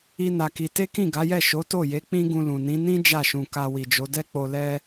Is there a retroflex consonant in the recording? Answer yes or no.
no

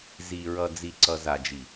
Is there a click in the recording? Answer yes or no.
yes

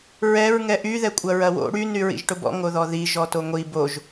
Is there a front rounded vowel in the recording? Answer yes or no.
yes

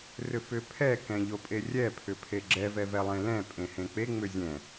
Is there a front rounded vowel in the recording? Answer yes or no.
yes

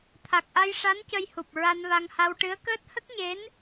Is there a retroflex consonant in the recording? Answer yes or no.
yes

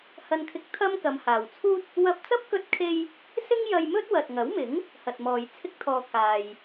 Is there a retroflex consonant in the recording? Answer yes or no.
no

